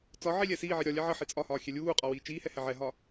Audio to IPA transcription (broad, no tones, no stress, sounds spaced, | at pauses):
t͡s ɒ ʕ i lʲ ɛ s iː ʕ i ɾʲ ɒ lʲ ɛ ʕ ə ħ i t͡sʼ ɒ h ɒː xʲ ɛ lʲ uː qʼ ɒ w iː t͡ʃ iː h ɛ h ɛ ʕ ɛ ɦ ɒ